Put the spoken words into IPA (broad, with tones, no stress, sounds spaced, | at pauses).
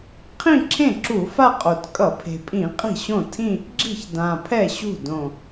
qʰ ĩ˥˧ ǁʰ ẽ˥˩ ǁ u˧˩˧ f a˥˧ qʼ o˨˩ t kʼ ʌ˧˩˧ pʰ e̤˨˩ pʼ ĩ˧˩˧ qʼ i̤˥˩ ɕ õ˥˩ tʰ ĩ˥˧ | ɡ͡ǁ i̤˥˩ ç d ã˨˩ pʰ ɛ˥˩ ɕ ṳ˥˩ d õ˨˩